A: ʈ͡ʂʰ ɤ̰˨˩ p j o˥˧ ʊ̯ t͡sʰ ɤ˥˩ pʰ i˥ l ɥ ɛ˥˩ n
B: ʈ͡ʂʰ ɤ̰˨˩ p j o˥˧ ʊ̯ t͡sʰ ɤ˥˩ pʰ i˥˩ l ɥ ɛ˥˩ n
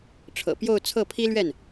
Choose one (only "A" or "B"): A